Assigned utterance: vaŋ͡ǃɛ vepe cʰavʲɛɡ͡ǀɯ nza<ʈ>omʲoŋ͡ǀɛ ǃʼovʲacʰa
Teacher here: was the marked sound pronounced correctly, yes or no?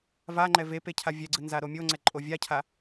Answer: no